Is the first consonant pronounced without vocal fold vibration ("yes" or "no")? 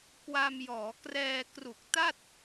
yes